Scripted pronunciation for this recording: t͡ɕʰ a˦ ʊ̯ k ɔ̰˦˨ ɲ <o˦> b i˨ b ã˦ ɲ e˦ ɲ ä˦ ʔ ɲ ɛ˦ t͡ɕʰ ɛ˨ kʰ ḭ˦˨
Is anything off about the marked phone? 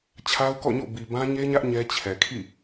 yes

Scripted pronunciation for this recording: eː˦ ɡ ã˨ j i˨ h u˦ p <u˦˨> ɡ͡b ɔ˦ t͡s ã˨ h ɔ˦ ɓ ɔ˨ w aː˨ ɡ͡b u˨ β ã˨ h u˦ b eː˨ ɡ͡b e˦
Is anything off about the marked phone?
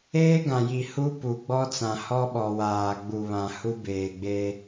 yes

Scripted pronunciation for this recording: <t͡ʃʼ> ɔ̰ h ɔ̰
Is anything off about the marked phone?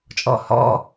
no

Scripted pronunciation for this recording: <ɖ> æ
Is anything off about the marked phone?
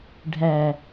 yes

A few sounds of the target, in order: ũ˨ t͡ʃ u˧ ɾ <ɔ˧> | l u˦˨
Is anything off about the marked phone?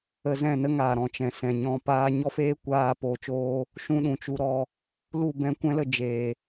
no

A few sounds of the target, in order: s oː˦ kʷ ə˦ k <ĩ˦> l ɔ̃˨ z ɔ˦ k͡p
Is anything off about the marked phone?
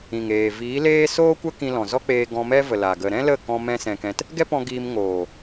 yes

